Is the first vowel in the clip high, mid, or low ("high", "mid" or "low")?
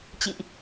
high